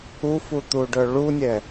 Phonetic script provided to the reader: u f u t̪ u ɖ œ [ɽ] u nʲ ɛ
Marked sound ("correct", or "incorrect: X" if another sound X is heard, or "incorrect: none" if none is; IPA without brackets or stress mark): incorrect: ɭ